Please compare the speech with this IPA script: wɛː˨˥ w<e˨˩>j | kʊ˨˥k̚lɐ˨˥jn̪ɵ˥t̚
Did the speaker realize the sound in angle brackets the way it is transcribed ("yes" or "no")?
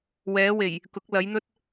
yes